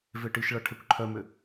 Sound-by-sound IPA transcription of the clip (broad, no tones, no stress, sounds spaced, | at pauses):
v e ʈ i ʃ ɭ ɐ ʈʰ ɛ kʷ ǃʰ œ m ʏ